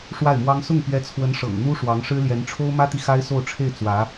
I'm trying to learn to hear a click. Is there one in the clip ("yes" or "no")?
no